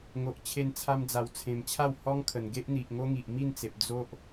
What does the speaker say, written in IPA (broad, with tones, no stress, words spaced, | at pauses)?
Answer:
ŋo˨ʔ t͡ɕʰe˧nt͡sʰa˧md͡za˨˩w t͡sʰẽ˨˩mt͡ɕʰa˥˧w hɔ˦ŋkʰə˨˩n ɡe˦ʔn̪i˨ʔŋo˦ŋi˨ʔ mi˥˧nt͡se˨p̚ d͡zo˦ʔ